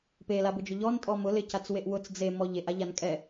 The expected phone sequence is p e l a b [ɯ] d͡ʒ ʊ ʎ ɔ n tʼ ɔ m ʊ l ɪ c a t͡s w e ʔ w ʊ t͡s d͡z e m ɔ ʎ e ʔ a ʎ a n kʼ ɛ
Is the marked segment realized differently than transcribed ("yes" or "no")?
yes